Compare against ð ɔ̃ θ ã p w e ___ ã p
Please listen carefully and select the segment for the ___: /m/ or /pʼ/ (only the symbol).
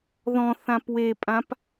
pʼ